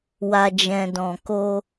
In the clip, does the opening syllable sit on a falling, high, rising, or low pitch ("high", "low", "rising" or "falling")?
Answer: low